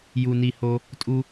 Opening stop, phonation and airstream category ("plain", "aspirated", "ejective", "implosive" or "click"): ejective